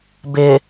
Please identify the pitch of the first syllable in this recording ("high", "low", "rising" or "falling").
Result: low